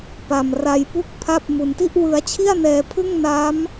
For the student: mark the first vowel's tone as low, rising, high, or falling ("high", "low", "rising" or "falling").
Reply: low